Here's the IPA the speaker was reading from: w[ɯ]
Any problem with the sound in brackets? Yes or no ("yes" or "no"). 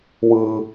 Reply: no